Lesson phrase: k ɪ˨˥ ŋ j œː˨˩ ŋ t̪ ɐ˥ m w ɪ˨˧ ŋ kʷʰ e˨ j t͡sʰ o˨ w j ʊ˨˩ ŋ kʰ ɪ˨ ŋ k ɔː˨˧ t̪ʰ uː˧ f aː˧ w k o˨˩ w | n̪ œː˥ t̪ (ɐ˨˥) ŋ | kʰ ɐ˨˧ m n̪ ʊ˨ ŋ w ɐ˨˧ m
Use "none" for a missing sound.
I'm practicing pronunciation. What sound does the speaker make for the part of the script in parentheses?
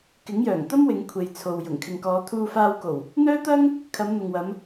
ɐ˥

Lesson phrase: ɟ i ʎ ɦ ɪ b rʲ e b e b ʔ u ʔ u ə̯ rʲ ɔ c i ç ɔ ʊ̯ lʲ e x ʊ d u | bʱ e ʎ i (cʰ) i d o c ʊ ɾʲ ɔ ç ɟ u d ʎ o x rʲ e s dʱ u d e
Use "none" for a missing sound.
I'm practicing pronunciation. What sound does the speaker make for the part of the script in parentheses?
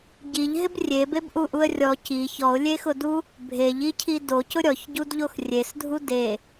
cʰ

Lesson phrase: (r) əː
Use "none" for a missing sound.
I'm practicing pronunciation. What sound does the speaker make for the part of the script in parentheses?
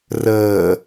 r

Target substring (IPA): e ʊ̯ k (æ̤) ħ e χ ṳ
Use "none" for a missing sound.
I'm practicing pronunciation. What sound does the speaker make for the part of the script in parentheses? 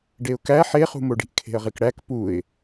æ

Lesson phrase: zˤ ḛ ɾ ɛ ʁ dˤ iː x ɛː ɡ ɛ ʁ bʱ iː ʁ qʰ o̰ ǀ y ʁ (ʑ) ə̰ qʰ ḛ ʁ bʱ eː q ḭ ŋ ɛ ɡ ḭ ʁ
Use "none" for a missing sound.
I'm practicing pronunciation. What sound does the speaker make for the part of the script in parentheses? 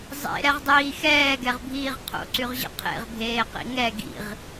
ʑ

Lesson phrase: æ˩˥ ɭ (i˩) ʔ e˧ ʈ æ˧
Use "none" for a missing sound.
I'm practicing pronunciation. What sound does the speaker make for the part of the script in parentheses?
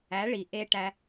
i˩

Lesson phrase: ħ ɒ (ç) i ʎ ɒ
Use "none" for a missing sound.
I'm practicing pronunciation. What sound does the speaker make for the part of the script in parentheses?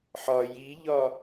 j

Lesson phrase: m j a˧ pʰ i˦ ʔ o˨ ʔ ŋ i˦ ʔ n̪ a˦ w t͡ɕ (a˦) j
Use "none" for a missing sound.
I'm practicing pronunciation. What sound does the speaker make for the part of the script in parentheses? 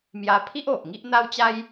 a˦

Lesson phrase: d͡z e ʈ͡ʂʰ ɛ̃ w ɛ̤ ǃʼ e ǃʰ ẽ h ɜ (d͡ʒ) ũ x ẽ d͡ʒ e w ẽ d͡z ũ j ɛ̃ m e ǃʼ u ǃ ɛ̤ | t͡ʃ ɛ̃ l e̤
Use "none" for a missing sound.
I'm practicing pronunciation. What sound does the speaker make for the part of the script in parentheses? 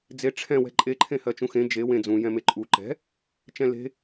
t͡ʃ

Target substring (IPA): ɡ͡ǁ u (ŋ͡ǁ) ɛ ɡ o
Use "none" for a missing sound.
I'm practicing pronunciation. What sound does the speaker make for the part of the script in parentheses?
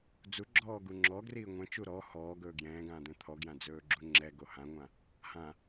ŋ͡ǁ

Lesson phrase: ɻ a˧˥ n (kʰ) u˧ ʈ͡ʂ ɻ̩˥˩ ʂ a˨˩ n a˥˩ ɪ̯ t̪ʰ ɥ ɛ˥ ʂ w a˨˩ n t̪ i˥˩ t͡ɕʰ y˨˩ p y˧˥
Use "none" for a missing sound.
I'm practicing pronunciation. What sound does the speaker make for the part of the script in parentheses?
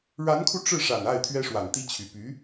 kʰ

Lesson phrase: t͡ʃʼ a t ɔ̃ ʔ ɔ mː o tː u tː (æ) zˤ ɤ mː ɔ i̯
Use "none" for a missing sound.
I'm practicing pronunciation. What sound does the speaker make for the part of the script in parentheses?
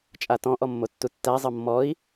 æ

